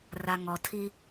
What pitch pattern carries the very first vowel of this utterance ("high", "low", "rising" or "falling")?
low